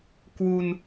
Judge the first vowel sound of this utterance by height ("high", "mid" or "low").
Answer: high